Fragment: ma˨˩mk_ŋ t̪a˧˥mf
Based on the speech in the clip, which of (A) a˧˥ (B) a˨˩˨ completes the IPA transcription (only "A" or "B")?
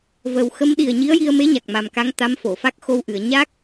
A